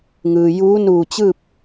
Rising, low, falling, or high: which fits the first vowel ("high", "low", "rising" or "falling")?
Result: low